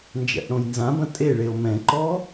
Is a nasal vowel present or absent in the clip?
present